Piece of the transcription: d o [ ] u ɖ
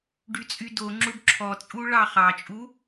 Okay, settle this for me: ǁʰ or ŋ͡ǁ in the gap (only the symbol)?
ŋ͡ǁ